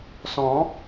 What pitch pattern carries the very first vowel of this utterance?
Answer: rising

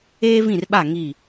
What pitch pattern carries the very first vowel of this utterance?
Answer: high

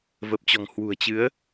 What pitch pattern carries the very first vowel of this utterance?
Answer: low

